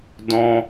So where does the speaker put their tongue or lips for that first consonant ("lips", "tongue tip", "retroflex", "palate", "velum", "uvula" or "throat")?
tongue tip